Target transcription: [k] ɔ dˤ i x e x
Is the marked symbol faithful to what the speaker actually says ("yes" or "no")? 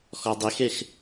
no